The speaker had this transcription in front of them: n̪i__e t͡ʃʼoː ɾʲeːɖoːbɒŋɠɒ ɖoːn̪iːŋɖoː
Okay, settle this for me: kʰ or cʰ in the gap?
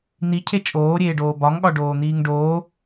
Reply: cʰ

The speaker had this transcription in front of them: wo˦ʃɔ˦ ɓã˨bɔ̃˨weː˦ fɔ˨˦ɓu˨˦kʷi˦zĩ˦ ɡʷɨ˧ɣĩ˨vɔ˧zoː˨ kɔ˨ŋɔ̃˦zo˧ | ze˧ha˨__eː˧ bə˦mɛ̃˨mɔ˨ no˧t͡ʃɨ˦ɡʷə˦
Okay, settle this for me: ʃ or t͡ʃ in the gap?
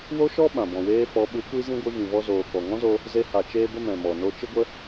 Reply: t͡ʃ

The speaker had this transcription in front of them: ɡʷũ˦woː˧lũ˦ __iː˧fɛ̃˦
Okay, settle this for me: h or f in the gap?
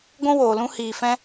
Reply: h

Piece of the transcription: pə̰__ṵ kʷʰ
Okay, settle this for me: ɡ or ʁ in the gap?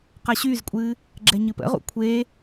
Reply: ʁ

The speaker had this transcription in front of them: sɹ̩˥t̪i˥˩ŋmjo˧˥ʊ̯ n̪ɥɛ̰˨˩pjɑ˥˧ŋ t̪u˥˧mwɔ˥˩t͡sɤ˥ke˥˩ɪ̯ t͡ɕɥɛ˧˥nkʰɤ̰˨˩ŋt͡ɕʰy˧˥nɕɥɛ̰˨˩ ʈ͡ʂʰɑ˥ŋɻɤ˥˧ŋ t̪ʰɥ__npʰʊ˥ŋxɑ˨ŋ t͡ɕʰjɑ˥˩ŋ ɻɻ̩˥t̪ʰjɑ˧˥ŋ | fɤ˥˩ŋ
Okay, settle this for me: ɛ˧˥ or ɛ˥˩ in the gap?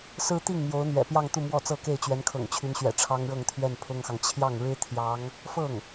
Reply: ɛ˥˩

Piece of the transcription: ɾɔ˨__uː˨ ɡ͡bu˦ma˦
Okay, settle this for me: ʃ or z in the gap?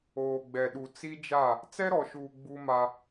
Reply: ʃ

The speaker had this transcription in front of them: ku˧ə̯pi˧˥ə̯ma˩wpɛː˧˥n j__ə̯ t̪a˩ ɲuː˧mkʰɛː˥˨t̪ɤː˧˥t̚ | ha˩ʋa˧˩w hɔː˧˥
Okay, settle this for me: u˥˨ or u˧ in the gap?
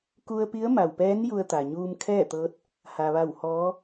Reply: u˧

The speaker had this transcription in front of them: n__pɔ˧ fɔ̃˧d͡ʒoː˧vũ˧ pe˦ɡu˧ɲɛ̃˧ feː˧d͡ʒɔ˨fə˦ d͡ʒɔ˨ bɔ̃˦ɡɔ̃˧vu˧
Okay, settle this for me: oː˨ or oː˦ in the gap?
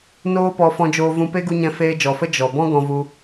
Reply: oː˦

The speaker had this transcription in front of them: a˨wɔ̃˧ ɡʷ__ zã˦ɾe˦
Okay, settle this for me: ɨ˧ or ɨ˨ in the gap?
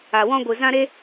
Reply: ɨ˨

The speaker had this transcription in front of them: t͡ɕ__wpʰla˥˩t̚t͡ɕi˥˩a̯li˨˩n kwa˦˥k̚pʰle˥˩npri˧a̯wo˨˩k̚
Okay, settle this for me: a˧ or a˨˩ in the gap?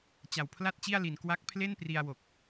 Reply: a˨˩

